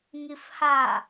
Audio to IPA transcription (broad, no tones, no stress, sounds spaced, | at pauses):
ŋ i f h a